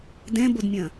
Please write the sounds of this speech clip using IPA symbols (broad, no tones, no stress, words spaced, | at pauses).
dɛ̃bodmʲɐ̃